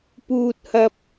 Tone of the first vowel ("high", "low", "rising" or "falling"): high